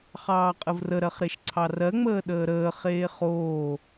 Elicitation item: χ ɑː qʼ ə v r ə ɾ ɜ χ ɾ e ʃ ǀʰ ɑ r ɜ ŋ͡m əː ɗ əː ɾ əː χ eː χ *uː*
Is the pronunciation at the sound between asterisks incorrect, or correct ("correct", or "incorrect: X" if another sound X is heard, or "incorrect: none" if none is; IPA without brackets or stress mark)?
incorrect: oː